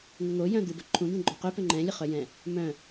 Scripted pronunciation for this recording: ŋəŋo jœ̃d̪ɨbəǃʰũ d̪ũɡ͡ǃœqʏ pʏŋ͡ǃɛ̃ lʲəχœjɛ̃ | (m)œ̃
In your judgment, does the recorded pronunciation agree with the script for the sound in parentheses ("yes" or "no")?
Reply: yes